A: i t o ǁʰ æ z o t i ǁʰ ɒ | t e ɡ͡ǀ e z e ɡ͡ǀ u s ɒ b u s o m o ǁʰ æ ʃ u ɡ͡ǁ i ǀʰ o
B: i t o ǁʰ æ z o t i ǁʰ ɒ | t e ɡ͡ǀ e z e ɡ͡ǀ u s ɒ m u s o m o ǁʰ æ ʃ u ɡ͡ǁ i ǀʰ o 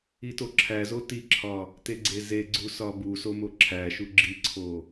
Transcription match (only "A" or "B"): A